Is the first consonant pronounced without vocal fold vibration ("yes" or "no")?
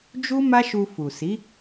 no